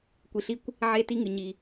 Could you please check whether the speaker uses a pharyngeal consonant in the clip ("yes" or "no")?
yes